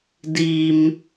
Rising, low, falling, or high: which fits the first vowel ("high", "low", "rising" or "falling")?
high